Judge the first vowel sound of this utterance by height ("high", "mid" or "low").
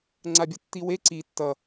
low